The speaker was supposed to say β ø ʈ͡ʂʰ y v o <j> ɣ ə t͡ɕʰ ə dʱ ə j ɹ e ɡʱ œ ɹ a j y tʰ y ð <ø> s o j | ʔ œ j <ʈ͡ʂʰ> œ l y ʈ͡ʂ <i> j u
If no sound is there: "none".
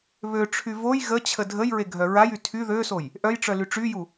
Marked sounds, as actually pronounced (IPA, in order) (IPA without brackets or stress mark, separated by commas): j, ø, ʈ͡ʂ, y